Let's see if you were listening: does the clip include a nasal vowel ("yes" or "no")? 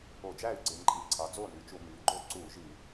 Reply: no